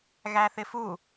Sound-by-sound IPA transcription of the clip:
ɣ æ θ ɪ f u

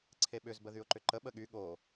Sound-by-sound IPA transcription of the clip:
ǀʰ e ɓ ʏ z b ə ð y ʊ̯ ǃ ʏ ǃ ə ɓ ə ɠ y ɠ o

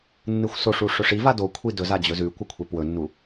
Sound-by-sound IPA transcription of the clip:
nː ɨ xʷ s o ʂ u ʂ ɵ ʂ i v a d o kʷʰ i d ɵ z a d͡ʑ ɵ z ʉ kʷ ɐ kʷʰ e p w ɵ nː u

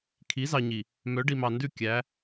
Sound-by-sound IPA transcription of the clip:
kʰ i˨˦ z ɑ˨ ɲ i˨ | m œ˨˦ ɖ i˨ m ɑ˨ n d ʉ˦˨ kʲ æ˨˦

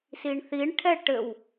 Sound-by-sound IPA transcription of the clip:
s i ɳ θ i ɳ ʈʰ ɛ ʈ ɘ w

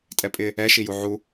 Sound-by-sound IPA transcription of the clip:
tʼ ɛ pʼ ɪ | ɛ ʃ i j u ʕ u

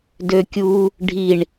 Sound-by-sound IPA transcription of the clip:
d ø kʲ u | ɖʱ i ɳ

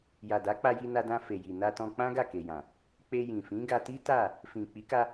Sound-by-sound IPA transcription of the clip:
j a˨ d a˨˦ k͡p a˧ j i˧ n a˧ d ã˧ f e˨ j i˨ n a˧ t ɔ̃˧ k͡p ã˦ ɡ a˦˨ k e˨ j ã˨ | k͡p e˧ j ĩ˨ f ĩ˨˦ ɡ a˧ t i˦ t a˦˨ | f ĩ˨ k͡p i˨˦ k a˧

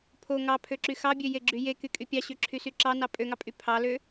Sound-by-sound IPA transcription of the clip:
pʰ o ŋ ɑ pʰ ø ǁ y x ɑ bʲ ø j e ɡ͡ǁ y j e k y kʼ y pʲ ɑ ɕ ø ǁʰ y s y ǁ ɑ n ɑ pʼ ø ŋ ɑ pʼ y pʰ ɑ l ø

